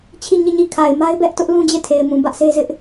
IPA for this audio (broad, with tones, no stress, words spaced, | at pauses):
t͡ɕʰi˦˨ɲi˦˨ɲi˦˨kʰa˨ɪ̯ ma˦ɪ̯bɛ˦ʔtʊ˦ʔ lũ˦d͡ʑe˦˨tʰe˨ɪ̯mũ˨ bä˦ʔse˦ zɪ˦ʔ